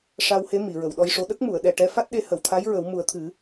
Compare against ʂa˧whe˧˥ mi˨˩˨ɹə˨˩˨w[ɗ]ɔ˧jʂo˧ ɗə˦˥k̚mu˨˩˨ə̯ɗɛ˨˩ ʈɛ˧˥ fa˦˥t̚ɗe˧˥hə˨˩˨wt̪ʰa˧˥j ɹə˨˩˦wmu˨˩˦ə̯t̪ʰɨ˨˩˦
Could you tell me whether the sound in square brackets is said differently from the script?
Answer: no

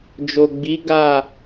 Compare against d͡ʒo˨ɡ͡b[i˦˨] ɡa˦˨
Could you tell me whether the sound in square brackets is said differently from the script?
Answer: yes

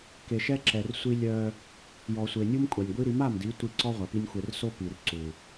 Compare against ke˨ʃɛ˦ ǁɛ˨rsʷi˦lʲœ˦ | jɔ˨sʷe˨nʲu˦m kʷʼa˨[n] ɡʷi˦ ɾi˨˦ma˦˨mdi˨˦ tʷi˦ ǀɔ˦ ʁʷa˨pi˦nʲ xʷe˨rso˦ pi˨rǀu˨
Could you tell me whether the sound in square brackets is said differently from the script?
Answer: yes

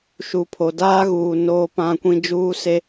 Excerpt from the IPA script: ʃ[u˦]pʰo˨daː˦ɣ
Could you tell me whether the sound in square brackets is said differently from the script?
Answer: yes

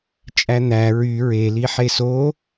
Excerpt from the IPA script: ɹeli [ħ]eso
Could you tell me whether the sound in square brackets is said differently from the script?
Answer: no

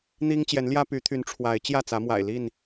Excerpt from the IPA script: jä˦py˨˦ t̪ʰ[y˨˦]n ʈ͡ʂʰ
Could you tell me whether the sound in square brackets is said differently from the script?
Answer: no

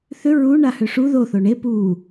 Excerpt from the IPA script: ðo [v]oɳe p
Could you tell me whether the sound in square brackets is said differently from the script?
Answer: yes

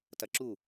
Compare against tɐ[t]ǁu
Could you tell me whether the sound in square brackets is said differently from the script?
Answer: yes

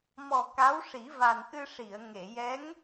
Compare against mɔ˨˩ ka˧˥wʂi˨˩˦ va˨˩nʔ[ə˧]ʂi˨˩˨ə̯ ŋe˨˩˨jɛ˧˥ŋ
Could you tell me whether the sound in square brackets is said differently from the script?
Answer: yes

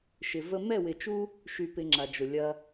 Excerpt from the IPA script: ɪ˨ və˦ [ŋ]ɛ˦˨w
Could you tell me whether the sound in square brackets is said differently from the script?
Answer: yes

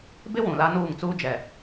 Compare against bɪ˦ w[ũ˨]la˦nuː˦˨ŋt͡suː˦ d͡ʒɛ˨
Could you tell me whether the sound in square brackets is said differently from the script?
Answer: no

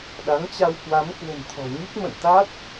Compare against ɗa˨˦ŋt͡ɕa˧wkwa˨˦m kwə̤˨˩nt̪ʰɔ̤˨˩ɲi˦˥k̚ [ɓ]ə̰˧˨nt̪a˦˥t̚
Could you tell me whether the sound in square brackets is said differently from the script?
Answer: yes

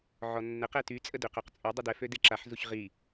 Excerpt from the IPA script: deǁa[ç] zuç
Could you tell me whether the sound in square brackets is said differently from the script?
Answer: yes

